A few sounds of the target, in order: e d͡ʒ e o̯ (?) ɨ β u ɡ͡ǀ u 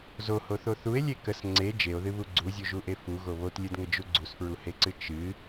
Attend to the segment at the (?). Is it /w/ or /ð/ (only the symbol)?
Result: ð